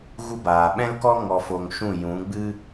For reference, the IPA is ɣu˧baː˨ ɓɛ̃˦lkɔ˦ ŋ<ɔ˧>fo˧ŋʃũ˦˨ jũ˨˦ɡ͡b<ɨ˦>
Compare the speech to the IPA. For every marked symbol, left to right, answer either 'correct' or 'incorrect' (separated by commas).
correct, correct